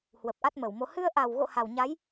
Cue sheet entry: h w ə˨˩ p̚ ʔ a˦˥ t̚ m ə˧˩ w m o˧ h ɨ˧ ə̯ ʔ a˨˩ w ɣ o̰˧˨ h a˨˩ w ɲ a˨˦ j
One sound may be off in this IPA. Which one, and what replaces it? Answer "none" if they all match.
none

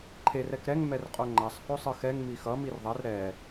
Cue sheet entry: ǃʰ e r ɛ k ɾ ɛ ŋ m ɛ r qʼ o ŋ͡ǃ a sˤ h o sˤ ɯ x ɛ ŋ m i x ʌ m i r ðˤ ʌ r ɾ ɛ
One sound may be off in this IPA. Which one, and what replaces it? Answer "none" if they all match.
none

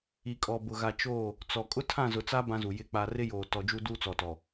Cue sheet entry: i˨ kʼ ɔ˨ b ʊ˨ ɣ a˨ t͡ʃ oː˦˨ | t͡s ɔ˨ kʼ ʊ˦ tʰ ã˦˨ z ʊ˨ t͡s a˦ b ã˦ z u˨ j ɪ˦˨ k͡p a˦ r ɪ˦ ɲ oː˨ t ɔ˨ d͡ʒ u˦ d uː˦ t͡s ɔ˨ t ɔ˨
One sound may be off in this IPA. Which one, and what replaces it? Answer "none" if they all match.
ɲ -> j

